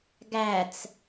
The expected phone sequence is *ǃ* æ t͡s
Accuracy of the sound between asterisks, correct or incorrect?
incorrect